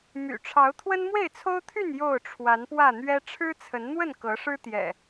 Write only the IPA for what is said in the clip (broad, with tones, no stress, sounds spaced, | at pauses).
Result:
m y̰˨˩ ʈ͡ʂʰ ɑ˨˦ ʊ̯ t̪ʰ w ə˦ n m w e˥˨ ɪ̯ t͡sʰ o˦ ʊ̯ t̪ʰ y˥˨ n j o˥˨ ʊ̯ ʈ͡ʂʰ w a˨˦ n p w ä˥˨ n̪ ɥ ɛ˦ ʈ͡ʂʰ ɻ̩˦ t͡sʰ ə˨˦ n n̪ w ə˥˨ n k ɤ˨˦ ʂ ɻ̩˦ t̪ j ɛ̰˨˩